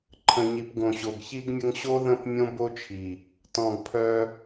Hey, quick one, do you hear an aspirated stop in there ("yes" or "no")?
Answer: yes